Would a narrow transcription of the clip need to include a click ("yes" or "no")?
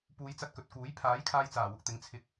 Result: no